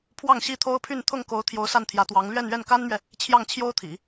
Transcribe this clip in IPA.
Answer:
pʰ w ɑ˥˩ ŋ ɕ i˥ t̪ʰ o˥ ʊ̯ pʰ y˥˧ n t̪ʰ ʊ˥˩ ŋ k o˧˥ ʊ̯ t̪ʰ j o˧˥ ʊ̯ s a˥˩ n t̪ʰ j ä˧˥ t̪ w ɑ˧˥ ŋ l ɥ ɛ˥˧ n ɥ ɛ˥˩ n k a˥ n m ɥ ɛ˨ | t͡ɕʰ j ɑ˥˩ ŋ t͡ɕʰ j o˥ ʊ̯ t̪ʰ ḭ˨˩˦

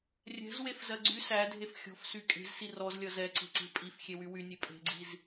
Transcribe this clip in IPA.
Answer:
rʲ ɛ̤ z w e f z ɜ ɡ͡ǀ y s æ dʱ e f xʲ ɔ̤ f s y kʼ e̤ z s i r ɔ z lʲ ʌ z ɛ ǀ e̤ ǀ e̤ pʼ i f xʲ e w y w y nʲ e pʼ e̤ ɡ͡ǀ i z

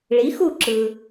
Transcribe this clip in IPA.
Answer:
ɭ i˩˥ x u˥˩ ǁ ɯ˩

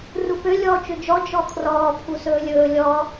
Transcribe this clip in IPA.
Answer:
r u p ø lʲ ɔː t͡ʃ ø d͡ʒ ɔ d͡ʒ ɔ kʰ r ɔː pʰ u s ɵː lʲ ɵː lʲ ɔ

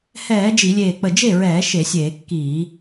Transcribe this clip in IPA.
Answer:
h ɛː˧˩˧ d͡ʒ i˧˩˧ lʲ eː˧˩ k͡p ə˧˩ d͡ʒ e˥˩ ɹ ɛː˧˩˧ ʃ e˧˩˧ sʲ eː˧˩˧ kː iː˧˩˧

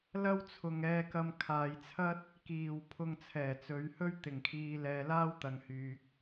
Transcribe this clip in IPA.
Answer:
l ɐ˥ w t͡sʰ ʊ˨ ŋ ɛː˧ k ɐ˧ m kʰ aː˨ j t͡sʰ ɐ˥ t̚ | k iː˨˩ w pʰ ʊ˧ ŋ t͡sʰ ɛː˨˩ t͡s ɵ˨˧ ɥ h ɵ˥ ɥ t̪ ɪ˨˩ ŋ kʰ iː˨ l ɛː˨ l aː˥ w t̪ ɐ˨ ŋ h yː˨ k̚

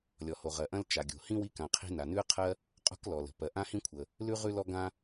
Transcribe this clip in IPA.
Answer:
lʲ ɔ˩ h o˩ ʁ ɜ˩ ʔ ɐ̃˥ l t͡ʃ a˩ ɡʲ o̤˩ h ĩ˥ w i˥ k ã˩ qʰ i̤˥ n a˩ n ʉ˥ ə̯ qʰ ɜ˥ | qʼ o̤˥ k l ɔ˩ l ə̤˩ p ɜ˩ ʔ ã˥ h ĩ˥ kʷʰ ə˩ | l ʉ˥ ʁ ʉ˥ l ɔ˥ ɡ ã˥

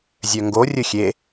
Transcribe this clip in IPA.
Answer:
zʲ œ ŋ ɡ o rʲ ɵ xʲ e

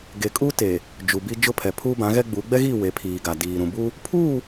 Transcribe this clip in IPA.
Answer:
ɡ e˨ kʼ u˦ t e˨ | d͡ʒ u˨ b i˦ d͡ʒ ʊ˦ pʰ ɛ˨ pʰ uː˦ b ã˨˦ ɣ ɛ˦ ɡ͡b u˨˦ ɡ͡b ɛ˦ ɣ i˦˨ w e˨˦ pʰ iː˨ ɡ a˨ d iː˨ ɾ ũ˨ b u˦ | pʰ uː˦˨

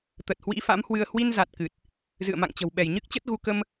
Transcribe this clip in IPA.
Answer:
t̪ ə˨˩ t̚ h w ḭ˧˥ f a̰˧˥ m h w ɨ˧ ə̯ h w i˧ n z a˨˩ t̚ k ɨ˨˩ t̚ | z ɨ̰˧˨ ə̯ m a̰˧˨ ŋ t͡ɕ ə̤˨˩ w ɓ ɛ˧˩ j ɲ ɨ˦˥ k̚ t͡ɕ ə˦˥ t̚ ɣ u˧ k ə˧ m

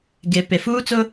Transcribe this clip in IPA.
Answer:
ɡ e˨ p e˨ f uː˦ t͡s ʊ˦

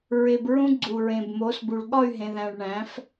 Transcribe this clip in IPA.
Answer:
ɹ e˧ b ɹ ũ˦ ɡ͡ǀ u˨ ɹ ẽ˨ b m o˨˦ s b u˨ ɭ ɠ ɒ˦˨ y̯ ɦ ẽ˨ ð æ̃˨ ɭ ɳ æ̃˨˦ f

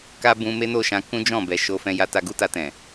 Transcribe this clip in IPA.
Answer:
k a˦ b ũ˧ m e˦ n o˦˨ ʃ ã˧ k ũ˦ d͡ʒ ɔ̃˦˨ b ɛ˨ ʃ o˧ f ɛ̃˧ j a˧ t a˧ ɡ u˦ t a˧ t ɛ̃˨

